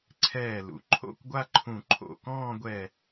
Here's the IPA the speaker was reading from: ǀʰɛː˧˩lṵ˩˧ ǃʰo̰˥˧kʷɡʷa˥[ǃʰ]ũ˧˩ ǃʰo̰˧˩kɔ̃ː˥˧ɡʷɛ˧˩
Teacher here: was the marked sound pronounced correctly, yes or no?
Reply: yes